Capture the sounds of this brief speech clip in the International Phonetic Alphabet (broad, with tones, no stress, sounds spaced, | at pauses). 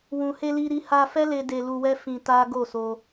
w ũ˨ h e˧ l i˧ ɾ i˦ h a˧ f ɛ˦ l e˧ d e˧ l u˧ w ɛ˦ f ĩ˧ t a˦ ɡ o˦˨ s o˧